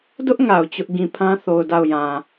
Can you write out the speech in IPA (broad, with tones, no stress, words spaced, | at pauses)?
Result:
dʊ˦ʔ ŋa˨ʊ̯t͡ɕʊ˦ʔ ɡĩ˨pʰã˦θo˨ʊ̯ da˦˨ʊ̯jã˨